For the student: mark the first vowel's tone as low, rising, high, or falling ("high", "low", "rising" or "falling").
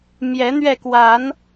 rising